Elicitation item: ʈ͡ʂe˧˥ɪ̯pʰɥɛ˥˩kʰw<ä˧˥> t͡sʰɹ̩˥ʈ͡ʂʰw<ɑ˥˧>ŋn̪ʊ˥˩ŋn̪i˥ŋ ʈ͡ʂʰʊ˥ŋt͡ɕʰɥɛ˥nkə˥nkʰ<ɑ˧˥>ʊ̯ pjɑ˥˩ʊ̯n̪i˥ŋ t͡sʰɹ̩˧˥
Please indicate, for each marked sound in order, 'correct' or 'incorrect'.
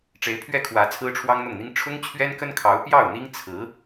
correct, incorrect: ɑ˥, correct

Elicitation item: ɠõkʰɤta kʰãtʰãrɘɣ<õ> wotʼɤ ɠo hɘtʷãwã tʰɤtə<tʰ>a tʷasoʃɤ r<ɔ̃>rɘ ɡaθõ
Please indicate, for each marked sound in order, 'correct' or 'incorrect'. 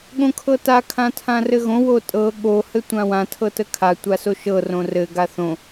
correct, incorrect: kʰ, incorrect: õ

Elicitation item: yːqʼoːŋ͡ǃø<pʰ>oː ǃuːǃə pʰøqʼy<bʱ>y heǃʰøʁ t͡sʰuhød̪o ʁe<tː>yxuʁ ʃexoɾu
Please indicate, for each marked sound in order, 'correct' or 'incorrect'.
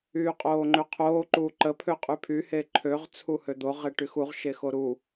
incorrect: qʰ, incorrect: pʰ, incorrect: ʈ

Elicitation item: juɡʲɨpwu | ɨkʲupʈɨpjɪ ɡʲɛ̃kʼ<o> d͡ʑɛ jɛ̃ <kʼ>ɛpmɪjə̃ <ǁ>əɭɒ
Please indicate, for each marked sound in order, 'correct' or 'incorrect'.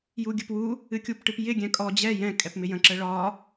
incorrect: ɔ, correct, correct

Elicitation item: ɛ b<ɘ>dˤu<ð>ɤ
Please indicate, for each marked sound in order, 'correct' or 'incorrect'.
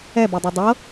incorrect: ɛ, incorrect: dˤ

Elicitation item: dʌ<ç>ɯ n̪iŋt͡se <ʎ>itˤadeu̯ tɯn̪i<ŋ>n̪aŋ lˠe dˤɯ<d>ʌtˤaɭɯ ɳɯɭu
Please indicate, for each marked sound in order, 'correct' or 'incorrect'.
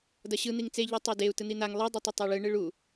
incorrect: ɕ, correct, incorrect: none, incorrect: tˤ

